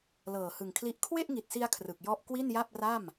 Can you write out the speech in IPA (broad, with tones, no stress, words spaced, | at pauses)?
lɤː˨˩hɯ˨˩ŋkʰli˦˥ʔ kʰwe˥˩ʔŋi˨˩t̚si˧a̯ kʰrɯ˨˩k̚ jɔ˦˥ʔkwi˥˩nja˥˩p̚ra˥˩m